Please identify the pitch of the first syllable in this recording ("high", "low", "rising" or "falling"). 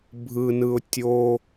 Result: low